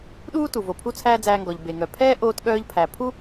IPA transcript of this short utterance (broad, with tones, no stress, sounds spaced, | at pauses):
ɗ uː˥ t u˩ v o˩ pʰ u˥ t͡sʰ æː˥ d͡z æː˧ ŋ ɡ ɔ˩ ʎ b e˩ ŋ œ˩ pʰ ɛː˥ ʔ oː˧ t ɠ œː˧ ʎ pʰ æ˩ pʰ u˥